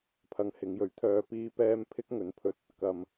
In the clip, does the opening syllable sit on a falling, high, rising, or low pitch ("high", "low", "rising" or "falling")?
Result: low